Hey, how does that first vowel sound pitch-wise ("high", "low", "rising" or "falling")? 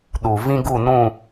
low